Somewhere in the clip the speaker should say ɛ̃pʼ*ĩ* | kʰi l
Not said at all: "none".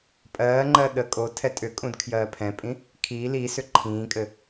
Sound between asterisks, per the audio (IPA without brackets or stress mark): ĩ